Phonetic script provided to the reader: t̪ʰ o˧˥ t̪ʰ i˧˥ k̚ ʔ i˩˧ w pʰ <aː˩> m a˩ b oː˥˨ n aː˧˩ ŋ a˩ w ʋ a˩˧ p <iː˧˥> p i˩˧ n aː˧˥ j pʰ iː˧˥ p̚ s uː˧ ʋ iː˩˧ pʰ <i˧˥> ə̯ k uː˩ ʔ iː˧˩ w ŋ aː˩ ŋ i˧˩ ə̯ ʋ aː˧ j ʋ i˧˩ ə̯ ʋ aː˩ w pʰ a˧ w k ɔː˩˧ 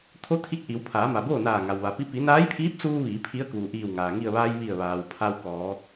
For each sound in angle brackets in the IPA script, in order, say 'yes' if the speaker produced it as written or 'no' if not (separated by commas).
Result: no, no, yes